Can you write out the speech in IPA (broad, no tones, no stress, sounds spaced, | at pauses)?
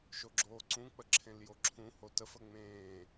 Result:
ʃ o ɡ͡ǁ oː ǀ ũ k͡p ə ǁʰ ẽ l j o ǁʰ ũ h o t ə f ə ŋ͡m ẽː